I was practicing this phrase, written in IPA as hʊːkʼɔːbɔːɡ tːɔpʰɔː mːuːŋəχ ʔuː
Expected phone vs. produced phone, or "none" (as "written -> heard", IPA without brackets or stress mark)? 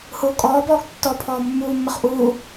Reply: ŋ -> mː